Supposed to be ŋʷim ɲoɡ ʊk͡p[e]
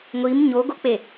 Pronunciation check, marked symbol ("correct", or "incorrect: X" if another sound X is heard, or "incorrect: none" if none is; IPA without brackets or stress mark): correct